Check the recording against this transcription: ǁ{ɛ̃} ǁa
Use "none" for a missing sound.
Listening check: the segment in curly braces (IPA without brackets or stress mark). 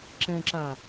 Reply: ɛ̃